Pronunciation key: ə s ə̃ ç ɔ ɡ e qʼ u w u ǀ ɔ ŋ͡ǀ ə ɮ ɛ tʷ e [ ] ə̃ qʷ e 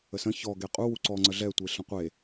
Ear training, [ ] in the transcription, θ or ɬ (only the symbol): ɬ